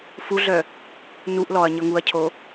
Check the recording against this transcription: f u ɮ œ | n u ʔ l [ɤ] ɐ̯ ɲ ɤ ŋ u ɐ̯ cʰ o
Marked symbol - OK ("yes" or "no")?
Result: no